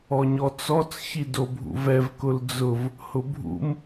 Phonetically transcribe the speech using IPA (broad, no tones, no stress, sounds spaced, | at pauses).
ɔ ɲ ɔ t͡s ɔ t͡s ç i d o bʱ ṵ v ɛ v k ʊ l d͡z ʊ v | h ʊ bʱ ṵ m